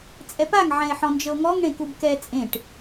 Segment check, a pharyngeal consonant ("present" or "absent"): present